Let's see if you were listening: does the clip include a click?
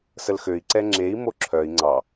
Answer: yes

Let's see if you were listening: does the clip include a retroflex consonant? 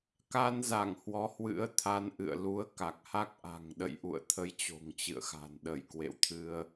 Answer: no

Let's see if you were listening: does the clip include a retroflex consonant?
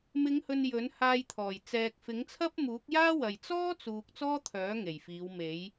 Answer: no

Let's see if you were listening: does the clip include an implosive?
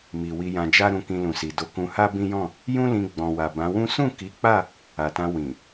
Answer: no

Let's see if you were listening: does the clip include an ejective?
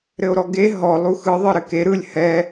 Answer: no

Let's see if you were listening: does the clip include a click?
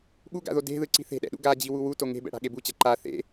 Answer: yes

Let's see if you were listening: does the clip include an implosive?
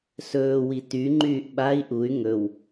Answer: yes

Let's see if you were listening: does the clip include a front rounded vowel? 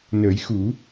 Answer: no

